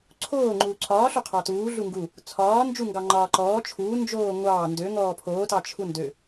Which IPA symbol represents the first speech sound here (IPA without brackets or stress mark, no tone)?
ǀʰ